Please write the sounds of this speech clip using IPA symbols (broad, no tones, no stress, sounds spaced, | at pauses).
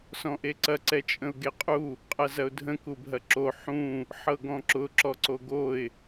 s ɔ̃ ʔ e ǀ ɐ ǀ ɛ t͡ʃʼ ə̃ ʊ̯ ɡ e qʼ u | qʼ ɐ z ɐ ʊ̯ dʱ ə̃ k u bʱ ɐ ǁ o ħ ũ | ħ ɤ ɡ ɔ̃ ǁ ʊ ǁ ɔ ǀ o ɡ o ɪ̯